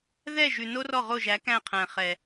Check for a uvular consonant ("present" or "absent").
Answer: present